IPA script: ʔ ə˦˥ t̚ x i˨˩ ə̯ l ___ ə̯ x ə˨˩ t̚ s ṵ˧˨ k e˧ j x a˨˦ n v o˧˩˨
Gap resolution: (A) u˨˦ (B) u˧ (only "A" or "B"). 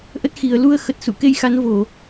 B